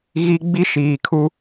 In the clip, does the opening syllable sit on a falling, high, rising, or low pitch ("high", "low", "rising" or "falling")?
high